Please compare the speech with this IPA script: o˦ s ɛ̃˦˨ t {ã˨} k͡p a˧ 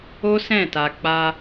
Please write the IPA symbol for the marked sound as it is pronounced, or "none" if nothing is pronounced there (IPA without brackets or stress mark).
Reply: a˨